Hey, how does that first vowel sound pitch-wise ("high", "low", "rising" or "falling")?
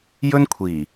high